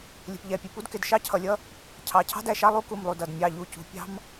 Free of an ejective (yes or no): yes